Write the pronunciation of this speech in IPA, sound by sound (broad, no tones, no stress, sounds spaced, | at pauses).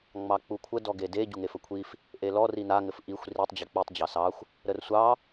ŋ͡m ɑ k͡p u kʷʰ ə d ɔ ɡ e d e ɟ u ŋ e f ə kʷʰ i f | ʔ e l ɔ r i n a ŋ ɘ f ʔ i xʷ r i tˤ d͡ʑ e k͡p i tˤ d͡ʑ ɑ s ɑ xʷ | ɾ ə r sʷ ɑ